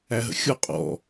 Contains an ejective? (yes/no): yes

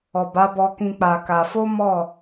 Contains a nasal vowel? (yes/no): yes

